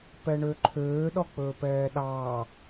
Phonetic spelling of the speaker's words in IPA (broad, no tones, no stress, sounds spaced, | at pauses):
p ɛ ɳ ø ǃʰ øː ɗ ɔ k͡p ɵː p ɛː ɗ ɑː